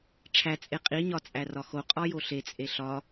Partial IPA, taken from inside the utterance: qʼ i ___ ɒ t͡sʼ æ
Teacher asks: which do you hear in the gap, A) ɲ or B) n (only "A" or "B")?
A